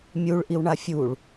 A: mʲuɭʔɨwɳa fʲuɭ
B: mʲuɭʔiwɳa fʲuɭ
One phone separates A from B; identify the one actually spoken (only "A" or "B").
B